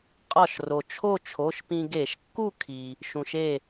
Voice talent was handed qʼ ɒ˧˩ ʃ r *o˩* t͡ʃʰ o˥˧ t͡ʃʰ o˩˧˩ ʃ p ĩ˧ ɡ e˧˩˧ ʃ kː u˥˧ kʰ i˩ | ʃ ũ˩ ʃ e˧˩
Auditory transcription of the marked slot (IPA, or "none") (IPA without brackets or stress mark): o˩